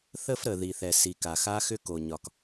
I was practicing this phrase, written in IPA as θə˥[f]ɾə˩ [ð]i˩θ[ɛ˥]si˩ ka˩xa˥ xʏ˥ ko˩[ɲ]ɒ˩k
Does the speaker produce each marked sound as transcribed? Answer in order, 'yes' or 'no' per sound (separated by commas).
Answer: yes, yes, no, yes